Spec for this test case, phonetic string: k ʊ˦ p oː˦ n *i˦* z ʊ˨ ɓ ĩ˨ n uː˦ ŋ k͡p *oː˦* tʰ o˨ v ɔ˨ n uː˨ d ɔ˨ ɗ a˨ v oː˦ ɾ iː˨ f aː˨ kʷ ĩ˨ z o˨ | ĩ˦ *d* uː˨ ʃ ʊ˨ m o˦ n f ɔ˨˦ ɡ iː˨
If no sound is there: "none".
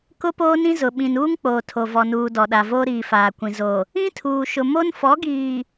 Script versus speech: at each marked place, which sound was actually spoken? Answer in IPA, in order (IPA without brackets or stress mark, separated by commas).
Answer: ĩ˦, oː˨, tʰ